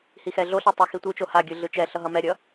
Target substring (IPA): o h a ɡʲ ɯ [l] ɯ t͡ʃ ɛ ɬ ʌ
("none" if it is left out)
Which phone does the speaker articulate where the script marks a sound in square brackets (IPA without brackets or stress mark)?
ɮ